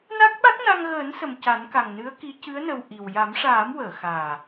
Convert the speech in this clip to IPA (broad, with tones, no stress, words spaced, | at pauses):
na˦˥k̚ɓa˦˥k̚na˧ŋ ɣəː˨˩˦nsə˨˩m ca˨˩˦nka˨˩ŋ nɨ˧˥ə̯ki˧˥cɨ˧˥ə̯ nə˧wʔi˨˩w ja˨˩˦mʂaː˨˩˦mwəː˨˩˨xaː˨˩